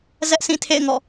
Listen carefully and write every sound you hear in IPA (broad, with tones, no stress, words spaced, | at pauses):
zɛ˦ʔ sĩ˦˨tʰḛ˦˨ɪ̯ŋɔ̰˦˨